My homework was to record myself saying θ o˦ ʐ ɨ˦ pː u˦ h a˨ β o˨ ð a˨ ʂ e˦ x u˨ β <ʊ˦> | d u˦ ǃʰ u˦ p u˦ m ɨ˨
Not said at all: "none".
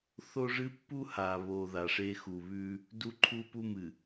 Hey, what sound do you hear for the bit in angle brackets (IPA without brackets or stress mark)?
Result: ʉ˦